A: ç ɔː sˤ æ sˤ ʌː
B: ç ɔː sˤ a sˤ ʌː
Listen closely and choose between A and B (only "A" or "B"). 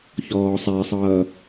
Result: A